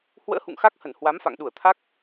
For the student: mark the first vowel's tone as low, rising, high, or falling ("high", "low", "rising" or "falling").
rising